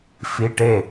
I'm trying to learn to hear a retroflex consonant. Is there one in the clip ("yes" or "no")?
yes